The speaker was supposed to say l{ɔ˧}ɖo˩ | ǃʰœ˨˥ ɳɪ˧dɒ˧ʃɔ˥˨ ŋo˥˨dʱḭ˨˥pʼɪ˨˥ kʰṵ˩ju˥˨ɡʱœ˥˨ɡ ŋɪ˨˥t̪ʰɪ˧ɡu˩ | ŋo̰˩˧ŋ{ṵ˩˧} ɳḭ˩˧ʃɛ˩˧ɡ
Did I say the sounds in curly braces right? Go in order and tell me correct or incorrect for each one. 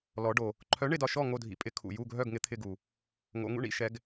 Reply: incorrect: ɔ˩˧, incorrect: ṵ˧

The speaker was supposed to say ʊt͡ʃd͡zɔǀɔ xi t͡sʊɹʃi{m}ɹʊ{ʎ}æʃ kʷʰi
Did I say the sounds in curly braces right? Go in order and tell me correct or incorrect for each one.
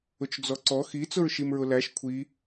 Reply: correct, incorrect: l

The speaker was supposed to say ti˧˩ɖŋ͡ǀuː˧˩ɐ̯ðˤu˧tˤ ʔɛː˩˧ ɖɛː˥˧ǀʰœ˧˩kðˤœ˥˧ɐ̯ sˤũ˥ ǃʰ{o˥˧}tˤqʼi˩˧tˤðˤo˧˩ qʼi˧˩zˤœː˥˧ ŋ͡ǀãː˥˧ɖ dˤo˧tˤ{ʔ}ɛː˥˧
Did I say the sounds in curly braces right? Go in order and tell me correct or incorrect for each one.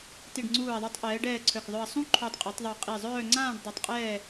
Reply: incorrect: o˧, incorrect: qʼ

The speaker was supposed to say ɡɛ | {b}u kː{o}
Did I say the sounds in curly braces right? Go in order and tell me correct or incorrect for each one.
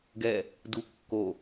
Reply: incorrect: d, correct

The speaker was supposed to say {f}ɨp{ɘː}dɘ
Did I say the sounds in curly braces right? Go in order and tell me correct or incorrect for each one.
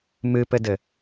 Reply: incorrect: m, incorrect: ɘ

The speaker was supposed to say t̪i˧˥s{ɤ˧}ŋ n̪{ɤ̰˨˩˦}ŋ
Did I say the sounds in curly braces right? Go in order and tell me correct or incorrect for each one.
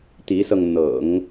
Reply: correct, correct

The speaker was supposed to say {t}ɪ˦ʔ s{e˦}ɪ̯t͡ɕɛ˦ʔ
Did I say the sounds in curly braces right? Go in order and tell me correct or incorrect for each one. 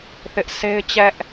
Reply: incorrect: θ, correct

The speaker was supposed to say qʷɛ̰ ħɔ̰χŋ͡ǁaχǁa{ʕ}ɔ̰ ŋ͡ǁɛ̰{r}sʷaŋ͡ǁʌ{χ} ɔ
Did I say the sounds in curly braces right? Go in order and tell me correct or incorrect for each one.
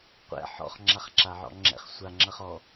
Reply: correct, incorrect: χ, correct

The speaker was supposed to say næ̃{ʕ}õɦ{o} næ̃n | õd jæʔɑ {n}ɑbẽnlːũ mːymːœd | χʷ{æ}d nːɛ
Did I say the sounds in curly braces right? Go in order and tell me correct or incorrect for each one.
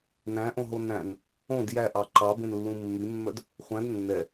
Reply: incorrect: ʔ, correct, incorrect: ǃ, incorrect: æ̃

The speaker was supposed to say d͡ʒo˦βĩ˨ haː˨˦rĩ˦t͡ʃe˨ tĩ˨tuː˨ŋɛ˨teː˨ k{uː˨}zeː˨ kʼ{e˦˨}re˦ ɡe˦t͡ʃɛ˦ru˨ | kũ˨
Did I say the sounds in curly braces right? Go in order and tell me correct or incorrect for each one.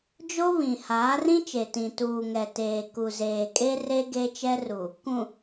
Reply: incorrect: u˨, incorrect: e˦

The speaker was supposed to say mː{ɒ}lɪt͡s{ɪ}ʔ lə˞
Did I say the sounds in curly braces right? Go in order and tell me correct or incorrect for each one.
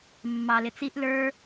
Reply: incorrect: ɑ, incorrect: i

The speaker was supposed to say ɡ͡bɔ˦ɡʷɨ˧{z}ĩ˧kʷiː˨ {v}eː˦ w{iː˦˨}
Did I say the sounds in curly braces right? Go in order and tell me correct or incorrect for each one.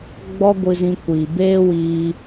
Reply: correct, incorrect: b, incorrect: iː˧

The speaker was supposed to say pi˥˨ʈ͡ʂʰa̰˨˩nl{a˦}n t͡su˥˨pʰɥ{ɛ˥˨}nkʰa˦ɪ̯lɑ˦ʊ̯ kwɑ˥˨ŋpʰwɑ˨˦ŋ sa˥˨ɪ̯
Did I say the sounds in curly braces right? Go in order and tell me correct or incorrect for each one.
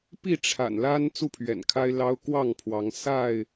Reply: correct, incorrect: ɛ̰˨˩

